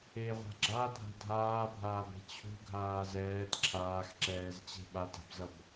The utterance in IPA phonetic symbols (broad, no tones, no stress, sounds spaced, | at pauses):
e ʁʷ a̤ ɡ͡ǁ a dʱ a̤ dʱ aː bʱ aː b e̤ t͡ɕʰ ṳ ɡʱ aː z ɛː t ǁʰ aː x ǁ ɛː z t͡ɕ e̤ ɓ a t a̤ b z ʌ b